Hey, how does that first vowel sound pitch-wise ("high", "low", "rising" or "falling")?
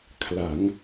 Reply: rising